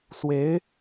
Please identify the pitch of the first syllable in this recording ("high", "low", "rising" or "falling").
rising